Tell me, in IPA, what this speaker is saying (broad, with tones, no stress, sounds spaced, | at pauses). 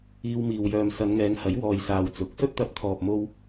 iː˧ w m iː˨ w j œː˨ m s ɐ˨˧ n ŋ ɛː˨˧ ŋ h ɐ˨˥ j w ɔː˨ j s aː˨ w t͡s ʊ˨˥ k̚ s ɵ˥ t̚ t̪ ɐ˨ p̚ t̪ʰ ɔː˨ p̚ m o˥ w